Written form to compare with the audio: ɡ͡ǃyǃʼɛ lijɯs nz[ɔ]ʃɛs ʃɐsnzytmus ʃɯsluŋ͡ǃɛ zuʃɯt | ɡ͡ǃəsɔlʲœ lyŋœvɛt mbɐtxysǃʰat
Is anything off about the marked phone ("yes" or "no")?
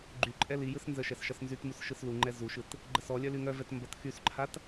yes